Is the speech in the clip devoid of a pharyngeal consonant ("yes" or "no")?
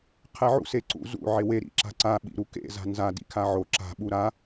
no